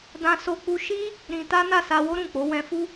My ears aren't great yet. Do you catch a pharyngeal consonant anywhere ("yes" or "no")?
no